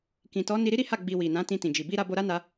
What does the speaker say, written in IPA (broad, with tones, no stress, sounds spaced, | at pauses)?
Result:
k ĩ˨ t ɔ˨˦ n i˧ ɾ i˦ ɾ i˦ h a˦˨ ɡ͡b i˨ w i˨ n ã˨˦ t ĩ˧ t ĩ˨ d͡ʒ i˨ b i˧ ɾ a˧ b o˧ ɾ a˦ n a˧